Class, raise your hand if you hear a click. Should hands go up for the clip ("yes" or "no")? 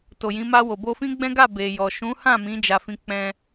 no